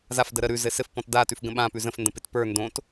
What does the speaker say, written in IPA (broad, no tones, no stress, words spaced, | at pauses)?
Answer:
zafdə ɾə ɾʉ zɘsɘf pɔ̃tdatʉf ɡə̃ɓãpʉ zə̃fndə̃pɪt pə˞ ndõt